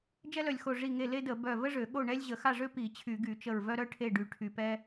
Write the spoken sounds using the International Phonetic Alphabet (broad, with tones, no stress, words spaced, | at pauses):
d͡ʒɛ˥lœ˧˩lʲxo˧˩ ʐi˧˩ŋe˧˩ le˥də˧˩˧ bœ˧˩və˥ʐø˧˩˧ ɠo˥˨ɳɛ˥lʲ ʑə˧˩˧xa˥˨ʐø˥ pi˧˩˧ t͡ɕʰy˧˩˧ɡy˧˩˧t͡ʃə˧˩ɹ vœ˥ɾœ˥ʈʰe˥˨ɖy˧˩ ʈʰy˧˩pɛ˥